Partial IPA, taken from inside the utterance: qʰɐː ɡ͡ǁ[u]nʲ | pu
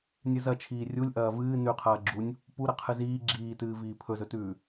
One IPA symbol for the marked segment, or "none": u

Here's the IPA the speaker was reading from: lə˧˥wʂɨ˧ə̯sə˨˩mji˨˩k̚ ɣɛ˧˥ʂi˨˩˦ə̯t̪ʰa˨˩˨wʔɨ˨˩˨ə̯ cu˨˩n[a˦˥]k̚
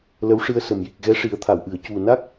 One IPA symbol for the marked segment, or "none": a˦˥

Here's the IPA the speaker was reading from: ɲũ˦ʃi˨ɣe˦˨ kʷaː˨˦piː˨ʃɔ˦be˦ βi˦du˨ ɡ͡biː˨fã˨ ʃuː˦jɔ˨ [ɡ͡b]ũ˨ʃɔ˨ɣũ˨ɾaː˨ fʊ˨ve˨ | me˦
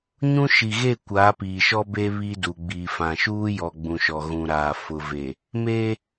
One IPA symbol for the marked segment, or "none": ɡ͡b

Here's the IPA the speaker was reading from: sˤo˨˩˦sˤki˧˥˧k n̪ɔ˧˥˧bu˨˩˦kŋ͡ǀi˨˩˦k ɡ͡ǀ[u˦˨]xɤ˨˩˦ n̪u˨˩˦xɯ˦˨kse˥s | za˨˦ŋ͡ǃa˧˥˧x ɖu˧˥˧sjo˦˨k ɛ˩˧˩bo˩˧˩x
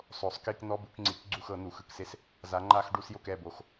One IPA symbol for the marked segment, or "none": u˦˨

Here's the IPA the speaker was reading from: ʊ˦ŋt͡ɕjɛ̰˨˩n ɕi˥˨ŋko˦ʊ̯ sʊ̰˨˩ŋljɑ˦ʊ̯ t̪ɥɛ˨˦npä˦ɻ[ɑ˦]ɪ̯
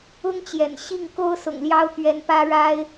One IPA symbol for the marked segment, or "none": a˦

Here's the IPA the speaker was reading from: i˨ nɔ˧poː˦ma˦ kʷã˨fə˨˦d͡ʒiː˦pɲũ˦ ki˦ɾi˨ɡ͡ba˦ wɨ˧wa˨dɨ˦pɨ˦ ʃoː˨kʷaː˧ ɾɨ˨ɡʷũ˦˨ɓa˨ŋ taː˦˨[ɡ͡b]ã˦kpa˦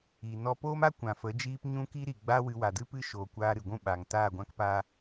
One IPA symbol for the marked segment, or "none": ɡʷ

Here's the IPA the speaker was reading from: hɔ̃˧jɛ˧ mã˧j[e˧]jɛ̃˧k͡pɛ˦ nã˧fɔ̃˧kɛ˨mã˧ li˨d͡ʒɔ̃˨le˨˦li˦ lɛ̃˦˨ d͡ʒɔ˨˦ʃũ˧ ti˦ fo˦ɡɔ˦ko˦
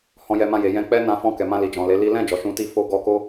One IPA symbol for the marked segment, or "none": e˨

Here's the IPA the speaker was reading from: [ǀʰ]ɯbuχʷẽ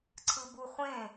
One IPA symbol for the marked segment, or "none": ǀʰ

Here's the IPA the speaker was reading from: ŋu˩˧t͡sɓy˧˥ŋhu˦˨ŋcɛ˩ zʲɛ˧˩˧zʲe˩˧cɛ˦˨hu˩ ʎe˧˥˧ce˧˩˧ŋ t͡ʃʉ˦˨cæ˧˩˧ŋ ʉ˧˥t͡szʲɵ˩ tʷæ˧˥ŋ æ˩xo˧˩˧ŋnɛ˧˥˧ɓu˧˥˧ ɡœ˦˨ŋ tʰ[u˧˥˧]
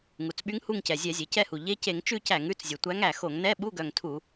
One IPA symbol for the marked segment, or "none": u˧˩˧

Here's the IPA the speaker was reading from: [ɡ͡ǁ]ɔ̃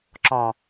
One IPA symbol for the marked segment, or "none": ǁ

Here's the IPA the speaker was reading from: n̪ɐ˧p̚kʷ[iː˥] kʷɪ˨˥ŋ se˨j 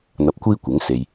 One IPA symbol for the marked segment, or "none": iː˥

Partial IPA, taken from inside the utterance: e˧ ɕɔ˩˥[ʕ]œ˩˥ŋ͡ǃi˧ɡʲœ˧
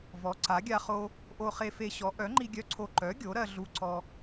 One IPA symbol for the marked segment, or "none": ʔ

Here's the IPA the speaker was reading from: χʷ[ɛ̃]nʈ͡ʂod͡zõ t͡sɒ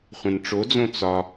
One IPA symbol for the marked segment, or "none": ɛ̃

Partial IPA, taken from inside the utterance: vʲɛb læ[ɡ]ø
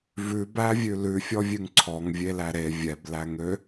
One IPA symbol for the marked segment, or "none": ŋ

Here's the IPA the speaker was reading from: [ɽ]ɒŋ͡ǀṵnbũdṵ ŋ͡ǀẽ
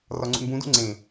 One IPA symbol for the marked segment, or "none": r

